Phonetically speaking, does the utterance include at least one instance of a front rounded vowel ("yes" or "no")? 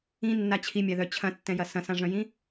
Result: yes